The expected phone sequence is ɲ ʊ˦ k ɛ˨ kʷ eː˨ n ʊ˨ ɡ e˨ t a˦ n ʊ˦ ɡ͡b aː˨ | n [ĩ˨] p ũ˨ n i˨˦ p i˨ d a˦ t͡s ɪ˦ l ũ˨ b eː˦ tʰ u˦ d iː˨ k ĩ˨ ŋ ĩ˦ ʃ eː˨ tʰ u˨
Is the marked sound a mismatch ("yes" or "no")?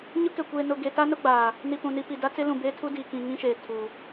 yes